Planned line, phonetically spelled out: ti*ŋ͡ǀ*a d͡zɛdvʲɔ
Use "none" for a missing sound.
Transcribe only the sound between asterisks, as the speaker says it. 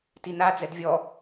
n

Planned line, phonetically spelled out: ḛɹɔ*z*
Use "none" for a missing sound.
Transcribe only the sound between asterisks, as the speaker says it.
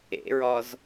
z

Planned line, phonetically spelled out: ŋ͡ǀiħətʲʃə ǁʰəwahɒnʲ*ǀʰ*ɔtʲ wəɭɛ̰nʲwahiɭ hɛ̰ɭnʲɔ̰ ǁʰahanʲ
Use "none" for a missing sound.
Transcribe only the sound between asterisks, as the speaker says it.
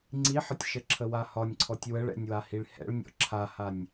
ǀʰ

